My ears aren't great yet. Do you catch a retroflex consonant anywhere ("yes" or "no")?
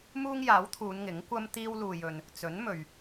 no